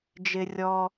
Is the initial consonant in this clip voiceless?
no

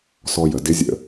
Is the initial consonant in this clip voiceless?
yes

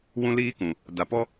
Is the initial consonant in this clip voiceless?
no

